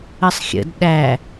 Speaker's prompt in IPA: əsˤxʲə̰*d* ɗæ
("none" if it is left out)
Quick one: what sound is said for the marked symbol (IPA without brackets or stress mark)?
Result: d